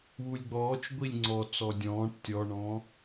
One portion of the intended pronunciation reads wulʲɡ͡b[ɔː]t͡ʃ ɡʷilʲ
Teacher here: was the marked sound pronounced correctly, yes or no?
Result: yes